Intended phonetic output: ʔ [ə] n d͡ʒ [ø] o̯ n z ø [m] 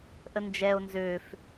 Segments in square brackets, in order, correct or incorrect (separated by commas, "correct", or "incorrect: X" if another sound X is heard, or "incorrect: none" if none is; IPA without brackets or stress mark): correct, incorrect: ɛ, incorrect: f